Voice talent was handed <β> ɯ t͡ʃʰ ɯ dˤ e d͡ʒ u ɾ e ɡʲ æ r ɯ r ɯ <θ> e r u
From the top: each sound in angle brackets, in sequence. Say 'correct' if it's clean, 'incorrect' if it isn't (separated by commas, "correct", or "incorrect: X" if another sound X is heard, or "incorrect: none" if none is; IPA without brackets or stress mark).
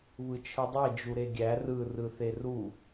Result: correct, correct